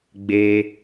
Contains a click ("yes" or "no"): no